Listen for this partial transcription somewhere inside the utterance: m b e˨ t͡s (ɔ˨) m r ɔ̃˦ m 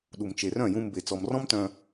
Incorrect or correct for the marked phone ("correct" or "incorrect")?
correct